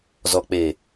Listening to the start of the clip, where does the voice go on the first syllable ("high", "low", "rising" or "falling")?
low